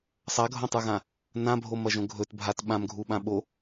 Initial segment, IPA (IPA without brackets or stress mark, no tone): sˤ